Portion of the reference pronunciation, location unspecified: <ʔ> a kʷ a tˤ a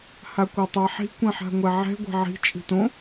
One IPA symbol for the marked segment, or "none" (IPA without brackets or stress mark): h